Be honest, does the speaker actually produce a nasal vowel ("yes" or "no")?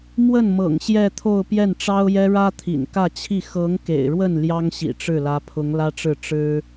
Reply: no